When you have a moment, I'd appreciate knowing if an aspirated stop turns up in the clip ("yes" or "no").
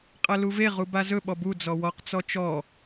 no